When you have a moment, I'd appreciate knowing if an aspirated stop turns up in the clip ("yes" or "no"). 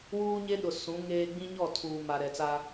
yes